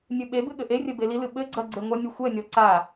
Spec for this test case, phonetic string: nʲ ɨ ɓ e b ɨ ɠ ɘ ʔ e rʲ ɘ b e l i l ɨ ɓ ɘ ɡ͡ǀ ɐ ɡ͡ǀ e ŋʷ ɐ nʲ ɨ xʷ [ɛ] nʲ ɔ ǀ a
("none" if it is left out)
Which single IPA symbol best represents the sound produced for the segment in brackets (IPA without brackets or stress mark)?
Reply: ɛ